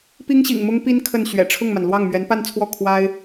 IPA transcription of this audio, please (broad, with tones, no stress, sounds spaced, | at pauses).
p i˥ ŋ ɕ ḭ˨˩ ŋ m ʊ˥ ŋ p i˥ n kʰ ə˥˩ n ɕ ɥ ɛ̰˨˩ ʈ͡ʂʰ ʊ˥˩ ŋ m a˩ n l w ɑ˥˩ ŋ m ɥ ɛ˧˥ n p a˥˧ n t͡sʰ w ɔ˥˩ kʰ w a˥ ɪ̯